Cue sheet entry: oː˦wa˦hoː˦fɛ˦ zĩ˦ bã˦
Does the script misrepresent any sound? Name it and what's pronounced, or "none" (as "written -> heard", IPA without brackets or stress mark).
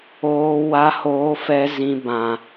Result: none